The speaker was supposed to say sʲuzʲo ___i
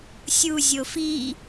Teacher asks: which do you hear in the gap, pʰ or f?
f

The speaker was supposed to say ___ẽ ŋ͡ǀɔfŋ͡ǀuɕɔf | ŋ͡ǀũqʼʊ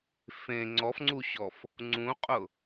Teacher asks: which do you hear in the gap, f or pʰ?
f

